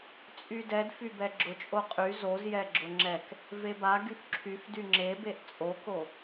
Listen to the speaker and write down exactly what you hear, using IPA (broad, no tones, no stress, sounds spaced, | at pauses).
t͡sʼ y d ɛ d f y b ɛ ɡ͡ǁ ʊ t͡ʃʼ o qʼ y z o z j ɛ ɡ͡ǁ ʊ ŋ͡ǁ ɛ k | v e b a ɡ y f ǁʰ y f d y ŋ͡ǁ e b e ʔ t͡sʼ o k o